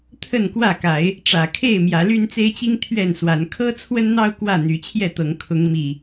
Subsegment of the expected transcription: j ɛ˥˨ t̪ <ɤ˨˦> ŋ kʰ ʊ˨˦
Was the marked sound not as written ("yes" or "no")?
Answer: no